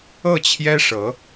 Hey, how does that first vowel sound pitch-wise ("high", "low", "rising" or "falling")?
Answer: falling